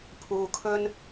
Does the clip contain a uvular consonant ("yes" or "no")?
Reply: no